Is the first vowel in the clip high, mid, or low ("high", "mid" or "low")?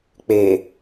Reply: mid